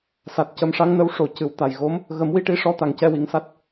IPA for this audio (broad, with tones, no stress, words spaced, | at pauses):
sa˨˩t̚ cə˨˩˦mʂa˧˥ŋnə˧˥w ʂo˨˩˦cɨ˨˩˦w t̪a˨˩jɣo˧˥m | ɣə˨˩˦mwi˧ʈi˧˥ʂɔ˧˥ t̪a˨˩ŋcɛ˧wi˨˩ŋsa˦˥t̚